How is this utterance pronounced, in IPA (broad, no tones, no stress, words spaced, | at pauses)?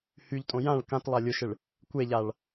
hyʎtʼõ jãɭ kãtlˠa lʲʊʃɪɭ | kʷeʎaɭ